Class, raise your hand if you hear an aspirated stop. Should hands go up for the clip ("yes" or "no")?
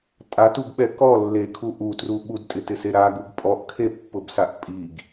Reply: yes